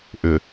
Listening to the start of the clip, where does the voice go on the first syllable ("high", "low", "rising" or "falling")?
low